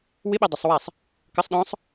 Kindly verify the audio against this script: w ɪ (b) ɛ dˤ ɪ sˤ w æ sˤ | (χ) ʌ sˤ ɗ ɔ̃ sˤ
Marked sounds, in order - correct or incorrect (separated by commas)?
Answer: incorrect, incorrect